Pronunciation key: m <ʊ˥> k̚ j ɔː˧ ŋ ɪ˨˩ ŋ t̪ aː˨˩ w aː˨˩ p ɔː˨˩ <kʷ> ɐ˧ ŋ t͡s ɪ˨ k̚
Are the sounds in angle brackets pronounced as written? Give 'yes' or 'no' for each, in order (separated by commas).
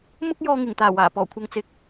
yes, no